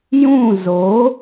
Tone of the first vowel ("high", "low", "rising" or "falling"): falling